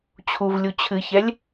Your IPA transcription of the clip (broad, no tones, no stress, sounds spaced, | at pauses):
t͡ɕʰ u v lʲ u t͡ɕʰ ɨ ç ɛ lʲ